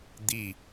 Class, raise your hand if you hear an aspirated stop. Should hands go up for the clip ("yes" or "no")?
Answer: no